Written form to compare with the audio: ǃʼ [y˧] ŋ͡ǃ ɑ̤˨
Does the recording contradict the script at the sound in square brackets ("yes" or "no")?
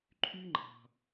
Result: no